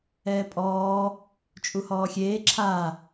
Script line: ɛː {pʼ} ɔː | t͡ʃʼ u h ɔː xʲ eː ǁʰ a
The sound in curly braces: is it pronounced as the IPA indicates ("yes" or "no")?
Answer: yes